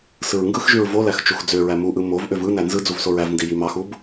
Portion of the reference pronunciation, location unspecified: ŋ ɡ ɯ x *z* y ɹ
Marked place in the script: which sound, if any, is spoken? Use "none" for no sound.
ʒ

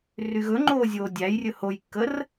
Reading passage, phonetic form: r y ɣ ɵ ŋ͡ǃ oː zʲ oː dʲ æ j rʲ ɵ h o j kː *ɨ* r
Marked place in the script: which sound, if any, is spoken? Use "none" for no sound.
ə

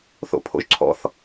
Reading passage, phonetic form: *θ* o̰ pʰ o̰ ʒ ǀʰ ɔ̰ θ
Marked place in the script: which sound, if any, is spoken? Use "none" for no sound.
θ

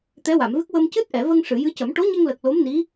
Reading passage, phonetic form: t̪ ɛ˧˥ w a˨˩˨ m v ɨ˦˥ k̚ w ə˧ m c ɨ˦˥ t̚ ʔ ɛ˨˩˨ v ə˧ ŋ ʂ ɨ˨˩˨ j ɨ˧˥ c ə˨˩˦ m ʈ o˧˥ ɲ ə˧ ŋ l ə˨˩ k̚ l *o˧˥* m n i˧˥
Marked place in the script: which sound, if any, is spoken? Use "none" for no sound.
o˧˥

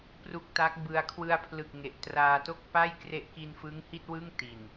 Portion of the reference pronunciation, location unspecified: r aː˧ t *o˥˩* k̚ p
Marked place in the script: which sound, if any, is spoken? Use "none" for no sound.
o˥˩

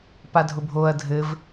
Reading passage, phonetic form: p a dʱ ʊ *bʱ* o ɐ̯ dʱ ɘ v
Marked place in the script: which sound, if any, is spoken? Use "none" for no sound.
bʱ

